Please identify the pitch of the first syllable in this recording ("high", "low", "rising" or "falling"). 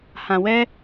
low